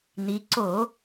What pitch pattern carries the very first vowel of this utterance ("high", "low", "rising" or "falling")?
rising